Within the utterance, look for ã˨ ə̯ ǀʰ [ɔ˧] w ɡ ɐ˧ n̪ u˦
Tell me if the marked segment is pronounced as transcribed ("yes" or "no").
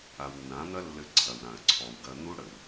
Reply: no